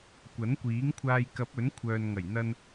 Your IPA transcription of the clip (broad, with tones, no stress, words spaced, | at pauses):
kʷɐ˨˥nkʷiː˨˥ŋkʷʰaː˧j kɐ˨˥p̚ɵ˨˥nkʷʰœː˨nŋɐ˨˩j n̪ɐ˧n